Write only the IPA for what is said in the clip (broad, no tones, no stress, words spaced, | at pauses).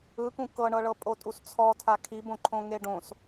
ɯkũ kɤɳɤɭɤ pʼotʼust͡sʰɔtʰa kʰibõǃʰõŋe ɖõs